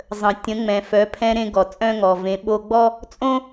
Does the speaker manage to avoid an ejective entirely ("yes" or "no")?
no